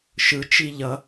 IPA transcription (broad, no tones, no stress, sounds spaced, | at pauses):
ʃ ɯ t͡ʃ i ʎ ʌ